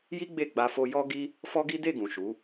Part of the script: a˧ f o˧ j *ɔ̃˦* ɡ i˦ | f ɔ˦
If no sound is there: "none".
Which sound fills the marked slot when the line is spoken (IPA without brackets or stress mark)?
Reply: ɔ˦